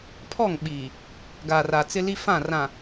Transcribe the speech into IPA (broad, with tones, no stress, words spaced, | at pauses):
pʰɔ˦˨ŋɓiː˨ | ɡaː˨ra˨t͡sɪ˦li˦ fã˦˨rã˨